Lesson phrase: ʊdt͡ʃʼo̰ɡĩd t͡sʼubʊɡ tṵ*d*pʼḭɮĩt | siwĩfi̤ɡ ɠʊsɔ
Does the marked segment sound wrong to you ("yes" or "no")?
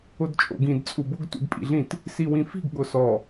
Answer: no